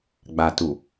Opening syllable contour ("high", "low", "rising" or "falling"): low